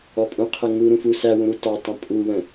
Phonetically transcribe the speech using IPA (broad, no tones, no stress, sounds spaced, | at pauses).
ɔ pʼ ũ qʰ ə ŋ u ɾ ũ f u s æ w ũ ɾ u t ɒ tˤ ə̃ pʼ u w ə̃